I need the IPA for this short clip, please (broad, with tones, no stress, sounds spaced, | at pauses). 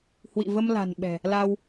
h w ḭ˧˨ v ə˧ m l a̤˨˩ n ɓ ɛ̤˨˩ | l a˧ w